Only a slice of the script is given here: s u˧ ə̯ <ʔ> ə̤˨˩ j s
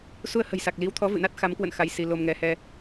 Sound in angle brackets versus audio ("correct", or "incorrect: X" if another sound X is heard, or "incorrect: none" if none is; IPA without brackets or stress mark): incorrect: h